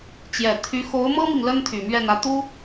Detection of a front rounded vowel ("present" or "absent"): present